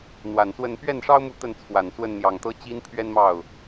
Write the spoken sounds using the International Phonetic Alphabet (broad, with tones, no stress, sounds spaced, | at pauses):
n̪ w a˨˩ n s w ə˥˧ n p ɥ ɛ˥˩ n ʂ ɑ˥ ʊ̯ m u˥˧ t̪ ə˥˩ n t͡sʰ w a˨˩ n s w ə˥˩ n n̪ j ɑ˨˩ ŋ t̪ ɤ˥ t͡ɕ i˥ n pʰ ɥ ɛ˥ n m ɑ˥˩ ʊ̯